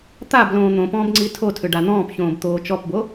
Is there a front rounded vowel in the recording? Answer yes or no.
yes